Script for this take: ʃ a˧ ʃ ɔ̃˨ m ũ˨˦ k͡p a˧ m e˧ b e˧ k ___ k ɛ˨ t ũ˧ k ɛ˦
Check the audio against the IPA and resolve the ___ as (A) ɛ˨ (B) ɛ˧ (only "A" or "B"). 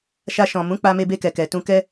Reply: A